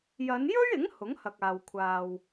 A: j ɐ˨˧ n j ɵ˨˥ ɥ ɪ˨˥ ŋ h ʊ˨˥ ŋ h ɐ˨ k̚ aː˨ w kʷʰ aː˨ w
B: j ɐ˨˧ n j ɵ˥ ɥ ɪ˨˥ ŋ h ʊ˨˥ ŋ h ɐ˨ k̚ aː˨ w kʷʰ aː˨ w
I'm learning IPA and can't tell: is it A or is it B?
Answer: B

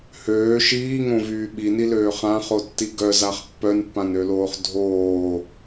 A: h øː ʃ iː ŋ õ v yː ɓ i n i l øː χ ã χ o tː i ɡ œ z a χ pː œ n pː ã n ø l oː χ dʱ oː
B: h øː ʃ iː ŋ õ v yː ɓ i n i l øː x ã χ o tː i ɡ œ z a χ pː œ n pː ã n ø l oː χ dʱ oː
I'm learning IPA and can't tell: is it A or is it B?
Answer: A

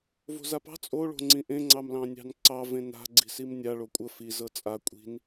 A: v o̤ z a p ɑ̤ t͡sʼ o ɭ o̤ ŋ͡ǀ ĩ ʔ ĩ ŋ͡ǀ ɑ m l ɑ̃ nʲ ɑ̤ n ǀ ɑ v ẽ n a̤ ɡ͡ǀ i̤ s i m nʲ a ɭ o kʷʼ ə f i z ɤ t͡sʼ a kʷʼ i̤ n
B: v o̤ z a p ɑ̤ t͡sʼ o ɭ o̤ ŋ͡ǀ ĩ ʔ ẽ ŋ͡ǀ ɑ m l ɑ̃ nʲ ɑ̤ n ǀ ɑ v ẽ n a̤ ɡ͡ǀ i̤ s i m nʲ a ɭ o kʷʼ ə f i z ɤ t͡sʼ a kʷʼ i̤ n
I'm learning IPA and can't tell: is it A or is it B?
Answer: B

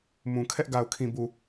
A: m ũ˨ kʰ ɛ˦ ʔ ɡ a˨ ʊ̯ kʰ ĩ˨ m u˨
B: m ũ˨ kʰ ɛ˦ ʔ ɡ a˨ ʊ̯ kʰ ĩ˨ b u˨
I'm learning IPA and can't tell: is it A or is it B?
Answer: B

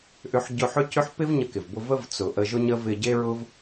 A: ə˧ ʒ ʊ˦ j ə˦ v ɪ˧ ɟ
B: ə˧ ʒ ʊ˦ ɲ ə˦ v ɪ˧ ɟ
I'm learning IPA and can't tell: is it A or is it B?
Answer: B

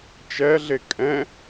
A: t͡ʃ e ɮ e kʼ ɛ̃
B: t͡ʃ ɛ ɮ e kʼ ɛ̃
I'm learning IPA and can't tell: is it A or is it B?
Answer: B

